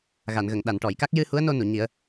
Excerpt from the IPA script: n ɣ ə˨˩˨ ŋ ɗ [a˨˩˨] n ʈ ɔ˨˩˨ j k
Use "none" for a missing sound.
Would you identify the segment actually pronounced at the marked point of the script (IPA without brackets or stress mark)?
a˨˩˨